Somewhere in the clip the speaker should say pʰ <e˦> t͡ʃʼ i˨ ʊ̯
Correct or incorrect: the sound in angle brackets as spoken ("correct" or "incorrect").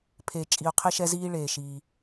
incorrect